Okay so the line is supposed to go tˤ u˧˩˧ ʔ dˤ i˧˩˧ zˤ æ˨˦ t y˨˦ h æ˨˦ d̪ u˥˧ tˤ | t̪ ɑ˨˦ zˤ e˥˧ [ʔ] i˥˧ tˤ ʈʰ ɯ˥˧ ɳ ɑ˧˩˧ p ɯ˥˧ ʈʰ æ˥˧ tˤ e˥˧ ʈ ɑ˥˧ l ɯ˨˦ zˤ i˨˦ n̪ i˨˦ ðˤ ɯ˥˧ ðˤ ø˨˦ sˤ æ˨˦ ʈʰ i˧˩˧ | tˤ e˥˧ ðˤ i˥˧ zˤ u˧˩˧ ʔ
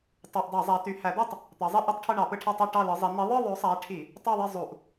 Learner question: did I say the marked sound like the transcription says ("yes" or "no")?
yes